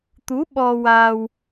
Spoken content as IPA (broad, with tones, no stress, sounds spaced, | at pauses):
t̪ u˧˥ ɓ ɔ˧ w aː˧ w